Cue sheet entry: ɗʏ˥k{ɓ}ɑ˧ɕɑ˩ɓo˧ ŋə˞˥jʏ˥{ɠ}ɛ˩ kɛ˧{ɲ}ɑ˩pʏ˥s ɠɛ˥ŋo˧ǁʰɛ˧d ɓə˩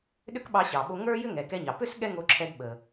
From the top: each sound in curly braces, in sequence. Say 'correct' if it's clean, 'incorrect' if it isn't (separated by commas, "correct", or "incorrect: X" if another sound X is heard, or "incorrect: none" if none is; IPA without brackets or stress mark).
correct, incorrect: ŋ, correct